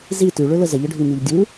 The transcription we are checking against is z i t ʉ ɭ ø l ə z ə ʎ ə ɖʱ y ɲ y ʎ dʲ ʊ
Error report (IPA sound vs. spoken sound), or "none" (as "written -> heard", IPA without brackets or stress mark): ʊ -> u